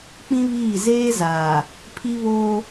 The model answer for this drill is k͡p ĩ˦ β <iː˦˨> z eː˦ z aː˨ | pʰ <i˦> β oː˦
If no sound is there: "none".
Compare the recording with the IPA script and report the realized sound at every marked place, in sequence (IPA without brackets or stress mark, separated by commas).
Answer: iː˦˨, i˦